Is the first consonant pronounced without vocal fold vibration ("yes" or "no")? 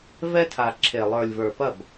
no